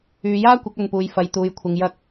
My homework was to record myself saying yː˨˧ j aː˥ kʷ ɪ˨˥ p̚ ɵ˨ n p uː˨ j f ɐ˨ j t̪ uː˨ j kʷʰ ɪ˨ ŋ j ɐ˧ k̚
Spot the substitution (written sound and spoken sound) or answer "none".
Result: p̚ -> k̚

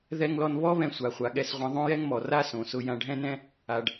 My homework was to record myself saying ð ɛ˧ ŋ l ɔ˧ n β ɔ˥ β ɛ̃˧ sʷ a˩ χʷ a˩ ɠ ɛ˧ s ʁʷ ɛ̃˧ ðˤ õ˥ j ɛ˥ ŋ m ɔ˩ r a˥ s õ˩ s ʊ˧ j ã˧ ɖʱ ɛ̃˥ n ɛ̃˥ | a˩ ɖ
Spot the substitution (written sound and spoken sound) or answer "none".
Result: none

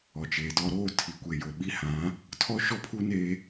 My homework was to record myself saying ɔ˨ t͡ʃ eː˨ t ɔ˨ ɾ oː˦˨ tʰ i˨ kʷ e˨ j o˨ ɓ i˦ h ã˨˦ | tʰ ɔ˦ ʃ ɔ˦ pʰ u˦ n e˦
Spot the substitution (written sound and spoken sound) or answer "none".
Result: none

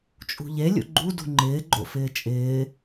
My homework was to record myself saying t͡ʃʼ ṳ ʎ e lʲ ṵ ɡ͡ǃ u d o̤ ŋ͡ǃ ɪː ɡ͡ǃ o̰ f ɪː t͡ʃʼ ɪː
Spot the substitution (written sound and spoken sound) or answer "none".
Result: o̤ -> ṳ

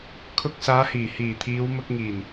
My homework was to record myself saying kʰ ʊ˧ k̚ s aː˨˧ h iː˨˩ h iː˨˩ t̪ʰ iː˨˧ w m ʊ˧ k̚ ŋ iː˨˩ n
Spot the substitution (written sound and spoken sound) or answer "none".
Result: none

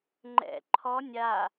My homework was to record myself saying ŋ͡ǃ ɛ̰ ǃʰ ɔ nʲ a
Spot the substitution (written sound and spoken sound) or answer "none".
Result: none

